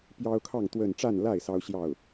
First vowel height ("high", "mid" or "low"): low